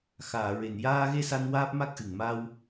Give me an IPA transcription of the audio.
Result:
x aː˨˩˨ ɹ e˨˩˨ n j aː˧ ɣ e˧ s a˧ n w aː˦˥ p̚ m a˦˥ k̚ ʔ ɨ˨˩˨ ŋ m a˧ w

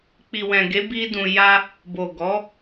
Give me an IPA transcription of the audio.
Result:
k͡p i˨ w ɛ̃˨ ɡ e˨˦ b i˦ d ũ˧ j a˦ | b o˨ ɡ ɔ˨˦

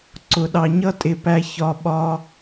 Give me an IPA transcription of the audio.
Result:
ǀ ʊ˨ ɗ ɑ˨ ɲ ʌ˦ tʼ ɪ˨ p æ˧ ç ɒ˧ ɓ ɒ˧

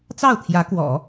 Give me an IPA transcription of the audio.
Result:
t͡s ɑ˥˩ ʊ̯ t̪ʰ j ä˧˥ k w ɔ̰˨˩˦

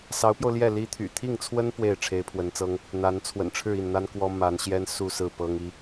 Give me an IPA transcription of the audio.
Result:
s ɑ˧˥ ʊ̯ p j o˧ ʊ̯ l j ɛ˥˩ l i˥ t̪ʰ y̰˨˩ t̪ʰ i˥˩ ŋ t͡sʰ w ə˥ n p w e˥˩ ɪ̯ ʈ͡ʂʰ e˧˥ ɪ̯ pʰ w ə˧˥ n t͡s ɤ˥ ŋ | n̪ a˧˥ n t͡sʰ w ə̰˨˩ n ʈ͡ʂʰ ɻ̩˥˧ i˥˩ n n̪ a˥ n k w ɔ˥ m a˧˥ n ɕ j ɛ˥ n s u˥˧ s ɹ̩˥˩ p ɤ˥ ŋ i˧˥

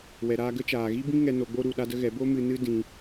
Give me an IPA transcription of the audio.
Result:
w ɛ˨ ɾ aː˧ ɡ ə˦ t͡ʃ aː˨ ɣ i˦ b ĩ˦ ŋ ɛ˧ n o˧ ɡ͡b o˦ ɾ u˨ ɗ a˦ d ə˦ ɣ ɛ˨˦ b o˦ m ɨ˧ n ɨ˦ d ĩ˧

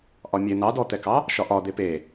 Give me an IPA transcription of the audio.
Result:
ʔ ɒ mʲ e n̪ ɑ d ɔ t̪ ɛ k ɑ | ʃ ɒ ʔ ɒ d̪ e p e

